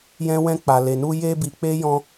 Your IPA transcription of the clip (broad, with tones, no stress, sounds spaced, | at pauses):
j ɛ̃˦ w ɛ̃˦ k͡p a˧ l e˧ n u˦ j e˦ b i˧ k͡p e˦ j ɔ̃˦